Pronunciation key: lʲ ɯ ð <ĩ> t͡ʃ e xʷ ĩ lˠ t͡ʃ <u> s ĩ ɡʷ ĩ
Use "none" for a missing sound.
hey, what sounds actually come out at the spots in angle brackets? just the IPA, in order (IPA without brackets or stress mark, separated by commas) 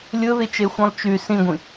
i, y